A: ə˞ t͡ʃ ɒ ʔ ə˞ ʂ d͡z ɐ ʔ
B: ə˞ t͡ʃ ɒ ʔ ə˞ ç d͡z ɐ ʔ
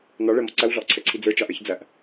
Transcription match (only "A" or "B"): B